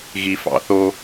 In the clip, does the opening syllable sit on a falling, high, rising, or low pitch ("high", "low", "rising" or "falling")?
low